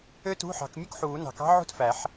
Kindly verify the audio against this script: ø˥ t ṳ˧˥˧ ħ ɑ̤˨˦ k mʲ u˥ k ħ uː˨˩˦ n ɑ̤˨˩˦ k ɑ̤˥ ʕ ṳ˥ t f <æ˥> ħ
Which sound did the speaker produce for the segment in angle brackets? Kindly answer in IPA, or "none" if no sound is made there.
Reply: æ˨˩˦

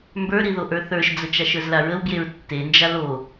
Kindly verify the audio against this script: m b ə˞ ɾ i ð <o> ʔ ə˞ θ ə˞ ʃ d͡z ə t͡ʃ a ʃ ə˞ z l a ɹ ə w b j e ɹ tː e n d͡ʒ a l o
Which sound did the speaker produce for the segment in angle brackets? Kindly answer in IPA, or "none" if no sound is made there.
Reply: o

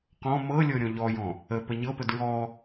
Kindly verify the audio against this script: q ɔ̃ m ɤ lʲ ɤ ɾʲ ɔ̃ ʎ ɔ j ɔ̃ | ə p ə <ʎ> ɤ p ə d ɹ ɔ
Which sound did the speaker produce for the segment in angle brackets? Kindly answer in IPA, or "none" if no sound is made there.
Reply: ɲ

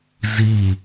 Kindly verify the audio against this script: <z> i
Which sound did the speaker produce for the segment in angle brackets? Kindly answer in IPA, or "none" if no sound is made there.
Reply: z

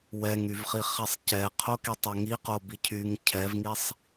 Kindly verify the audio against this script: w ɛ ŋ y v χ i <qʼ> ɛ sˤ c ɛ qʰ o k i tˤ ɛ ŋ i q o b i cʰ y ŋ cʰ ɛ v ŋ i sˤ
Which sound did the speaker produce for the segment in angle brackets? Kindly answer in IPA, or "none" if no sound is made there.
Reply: χ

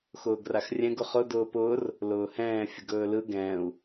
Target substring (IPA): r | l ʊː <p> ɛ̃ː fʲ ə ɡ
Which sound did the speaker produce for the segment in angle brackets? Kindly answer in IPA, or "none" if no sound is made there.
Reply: h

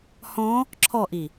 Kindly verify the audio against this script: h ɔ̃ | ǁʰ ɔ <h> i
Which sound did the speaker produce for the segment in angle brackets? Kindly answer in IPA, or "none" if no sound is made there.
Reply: ʔ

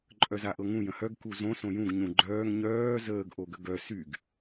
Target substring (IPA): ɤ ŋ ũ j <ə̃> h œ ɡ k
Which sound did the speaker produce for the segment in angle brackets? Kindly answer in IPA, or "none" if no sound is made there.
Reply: ə̃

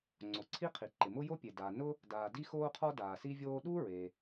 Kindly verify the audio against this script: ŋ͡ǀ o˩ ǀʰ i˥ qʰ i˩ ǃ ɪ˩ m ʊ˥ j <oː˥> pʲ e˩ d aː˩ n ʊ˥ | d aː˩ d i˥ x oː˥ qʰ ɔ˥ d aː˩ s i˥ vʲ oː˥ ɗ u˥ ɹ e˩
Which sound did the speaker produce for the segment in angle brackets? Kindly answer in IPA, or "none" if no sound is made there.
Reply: o˥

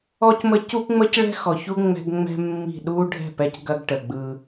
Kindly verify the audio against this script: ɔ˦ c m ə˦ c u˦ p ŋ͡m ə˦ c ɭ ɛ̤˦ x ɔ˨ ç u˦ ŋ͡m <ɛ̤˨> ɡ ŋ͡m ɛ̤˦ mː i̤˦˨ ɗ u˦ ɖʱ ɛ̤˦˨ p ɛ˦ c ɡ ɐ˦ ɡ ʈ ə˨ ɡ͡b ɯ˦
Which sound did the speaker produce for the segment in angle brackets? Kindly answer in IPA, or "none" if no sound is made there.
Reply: ɛ̤˦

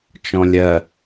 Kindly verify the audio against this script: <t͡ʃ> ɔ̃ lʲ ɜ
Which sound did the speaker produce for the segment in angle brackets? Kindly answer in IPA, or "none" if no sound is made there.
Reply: t͡ʃ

